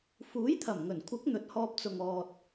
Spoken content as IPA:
fuː˨˥jt̪ʰɐ˨˩mŋɵ˨˩nkʷʰɪ˨˥k̚ n̪ɵ˨t̚hɔː˧p̚t͡sʊ˨ŋɔː˨t̚

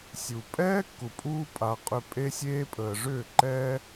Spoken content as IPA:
sʲu˨ pʼɛː˦kːu˨ pʼuː˧pʼa˨ qʼʏ˧pʼe˦sʲeː˦ pʼəː˨ʐʏː˦˨ ǃɛː˦

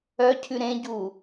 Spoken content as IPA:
œcʰʉ ɾẽɟu

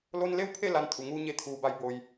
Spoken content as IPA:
lo˧nle˥˨wpʰe˥˨ la˧nt̪ʰu˩ŋuː˧ ɲe˧˩t̪ʰuː˩ba˩˧j bo˩j

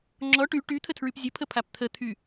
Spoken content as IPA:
ŋ͡ǁɔ ʈy ʈyt̪ʰətʰɹyp zʲəpʰəpʰap t̪ʰət̪ʰy

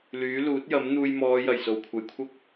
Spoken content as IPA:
lyː˨˥luː˨˥t̚jɐ˨˥m n̪uː˧jmɔː˨˧ jɐ˨˩jso˨˩wkʷʰɐ˨˧jkʷʰɐ˥k̚

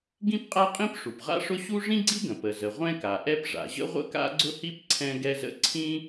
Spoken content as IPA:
ɡĩ˥pqʼa˥qʼĩ˥p ʂu˩pʁa̰˥ʂʊ˥ ɕu˥ ʐĩ˥ɡ͡ǀi˥ɡə̃˩ pə˩zə˩ ʁʷɛ̃˥ka˩ʔɛ˥p ʐa̰˩ʑə̰˥ ʁʷə̰˥ka̰˥ɡ͡ǀʊ˥hi˥p ǀʰɛ̃˥ɡɛ˥zə̰˥ ǀʰĩ˥

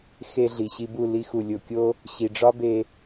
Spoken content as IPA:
xe˧ ɮi˨ɕi˧bu˦˨ li˧xu˨ lʲo˨kʲo˦ | ɕi˨ɖ͡ʐɒ˦be˧

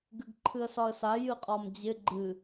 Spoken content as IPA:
ɡɨɡǃʰɨə̯sɒə̯sa jɨqʼɒmd͡ʑɪ ɡ͡ǃɨ

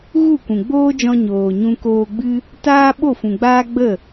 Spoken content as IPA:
ɣu˦˨kʷũ˨ɡ͡boː˦d͡ʒɔ̃˧ ɲoː˨ɲũ˧koː˧ɡ͡bɨ˦ | taː˦ ɓo˦˨fũ˨ɡ͡baː˦ ɡ͡bə˦˨

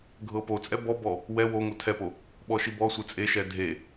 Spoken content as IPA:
ɡʱɤpot͡sʼɛ bɔbɔ | wɛ woŋo tʰɛpo | ɓɔʃibɔsʷɛ t͡sʼeʃɛ dʱe

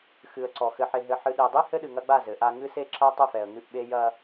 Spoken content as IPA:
xɨ˨ə̯ǀɔ˨ xɘ˨ħe˨ɦɘ˨ ħɨ˨ɗe˨dˤi˦ hɘ˦ɗɨ˨ŋɐ˦ɡ͡ba˦˨ zɘ˨˦ʔa˦ ŋɨ˦se˦ǁɐ˦ tˤɘ˦˨fɛ˨ə̯ŋɨ˦˨ʔɓe˦ jɐ˦

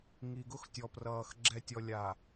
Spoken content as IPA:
ŋi˨ɡʊ˦xtʲɔ˨prʌː˨x ɡ͡ǁɛ˨tʲɔ˨ lʲa˨

